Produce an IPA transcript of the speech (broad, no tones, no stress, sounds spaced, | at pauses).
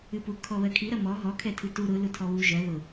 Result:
ɨ p u kʰ ɔ β ɜ kʰ i ɾ ɐ m ɔ ɦ ɔ kʰ ɛ tʰ ɨ t u ɾ ʊ l ʊ tʰ ɔ β u ʒ ɜ ð ʊ